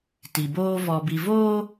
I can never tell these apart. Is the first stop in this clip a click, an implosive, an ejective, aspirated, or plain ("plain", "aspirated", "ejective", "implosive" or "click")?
plain